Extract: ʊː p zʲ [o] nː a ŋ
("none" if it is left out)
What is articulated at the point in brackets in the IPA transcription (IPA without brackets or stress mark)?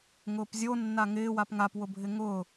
o